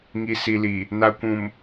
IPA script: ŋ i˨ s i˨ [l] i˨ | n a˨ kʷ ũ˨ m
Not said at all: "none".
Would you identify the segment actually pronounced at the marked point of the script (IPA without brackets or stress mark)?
l